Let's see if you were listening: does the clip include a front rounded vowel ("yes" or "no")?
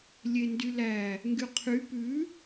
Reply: yes